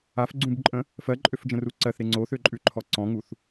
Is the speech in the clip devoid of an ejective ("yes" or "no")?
no